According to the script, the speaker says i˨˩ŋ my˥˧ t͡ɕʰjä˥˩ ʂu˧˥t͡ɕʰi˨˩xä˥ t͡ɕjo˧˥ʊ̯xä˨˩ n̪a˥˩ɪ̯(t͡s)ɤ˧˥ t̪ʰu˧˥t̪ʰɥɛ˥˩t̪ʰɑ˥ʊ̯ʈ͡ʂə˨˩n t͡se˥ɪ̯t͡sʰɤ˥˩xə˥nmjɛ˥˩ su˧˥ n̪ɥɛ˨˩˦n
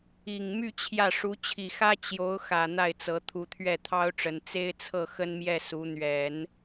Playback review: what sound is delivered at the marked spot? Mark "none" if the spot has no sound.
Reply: t͡s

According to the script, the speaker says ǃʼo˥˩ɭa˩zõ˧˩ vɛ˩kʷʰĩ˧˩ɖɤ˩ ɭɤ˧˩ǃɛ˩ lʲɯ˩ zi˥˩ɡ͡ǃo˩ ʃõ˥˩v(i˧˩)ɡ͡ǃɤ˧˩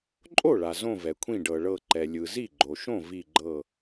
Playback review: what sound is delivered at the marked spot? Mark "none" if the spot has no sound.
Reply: i˧˩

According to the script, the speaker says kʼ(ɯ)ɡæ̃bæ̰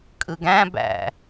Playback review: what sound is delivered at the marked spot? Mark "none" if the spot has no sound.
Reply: ɯ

